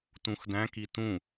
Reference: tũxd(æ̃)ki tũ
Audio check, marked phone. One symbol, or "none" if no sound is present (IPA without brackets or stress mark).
æ̃